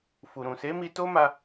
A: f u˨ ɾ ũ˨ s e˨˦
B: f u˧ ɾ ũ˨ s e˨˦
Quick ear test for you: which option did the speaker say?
A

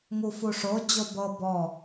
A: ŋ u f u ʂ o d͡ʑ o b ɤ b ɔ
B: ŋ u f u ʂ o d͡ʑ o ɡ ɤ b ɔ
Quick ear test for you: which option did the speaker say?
A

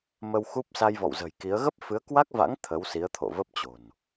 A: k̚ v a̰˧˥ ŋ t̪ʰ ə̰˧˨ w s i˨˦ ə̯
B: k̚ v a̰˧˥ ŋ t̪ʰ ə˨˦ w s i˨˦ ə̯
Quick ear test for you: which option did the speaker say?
B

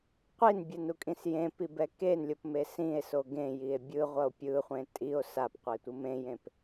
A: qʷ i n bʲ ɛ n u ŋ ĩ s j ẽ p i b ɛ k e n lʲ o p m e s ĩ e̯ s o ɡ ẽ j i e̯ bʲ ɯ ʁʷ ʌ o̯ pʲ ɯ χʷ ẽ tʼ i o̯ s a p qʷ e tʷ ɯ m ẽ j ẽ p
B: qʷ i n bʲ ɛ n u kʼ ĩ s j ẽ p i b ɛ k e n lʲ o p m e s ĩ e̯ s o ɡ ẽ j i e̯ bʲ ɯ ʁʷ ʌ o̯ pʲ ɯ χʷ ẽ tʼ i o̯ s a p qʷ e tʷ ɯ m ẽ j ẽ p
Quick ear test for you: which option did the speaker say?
B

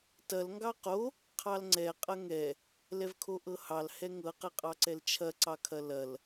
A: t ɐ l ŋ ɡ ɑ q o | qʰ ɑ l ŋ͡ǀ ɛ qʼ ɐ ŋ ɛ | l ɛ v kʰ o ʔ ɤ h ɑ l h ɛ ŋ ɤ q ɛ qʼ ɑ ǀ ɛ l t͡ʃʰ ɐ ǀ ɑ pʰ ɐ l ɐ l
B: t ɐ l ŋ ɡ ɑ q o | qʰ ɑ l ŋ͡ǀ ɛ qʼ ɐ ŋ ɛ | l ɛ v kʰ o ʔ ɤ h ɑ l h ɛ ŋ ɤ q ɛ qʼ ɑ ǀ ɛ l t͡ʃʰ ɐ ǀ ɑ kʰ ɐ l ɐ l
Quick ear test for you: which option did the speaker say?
B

